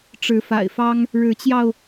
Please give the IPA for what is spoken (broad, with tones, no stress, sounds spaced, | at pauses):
ʈ͡ʂ ɻ̩˨˦ f a̰˨˩ ɪ̯ f ɑ˦ ŋ | ɻ ɻ̩˨˦ t͡ɕ j ɑ˧ ʊ̯